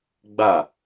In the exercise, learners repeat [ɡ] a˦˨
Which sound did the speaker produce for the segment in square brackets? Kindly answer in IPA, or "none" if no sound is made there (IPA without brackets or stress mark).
ɡ͡b